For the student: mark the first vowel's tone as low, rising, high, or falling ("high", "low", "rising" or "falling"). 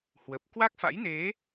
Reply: low